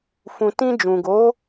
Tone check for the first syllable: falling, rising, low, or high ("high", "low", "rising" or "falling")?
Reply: low